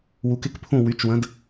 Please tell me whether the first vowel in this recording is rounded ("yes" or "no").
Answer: yes